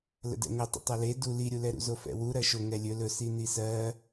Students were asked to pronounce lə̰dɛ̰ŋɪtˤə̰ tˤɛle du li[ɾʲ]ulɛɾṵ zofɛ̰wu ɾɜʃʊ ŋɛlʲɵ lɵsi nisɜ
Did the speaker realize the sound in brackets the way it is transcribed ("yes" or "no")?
yes